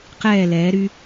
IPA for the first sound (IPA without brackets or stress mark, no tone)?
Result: q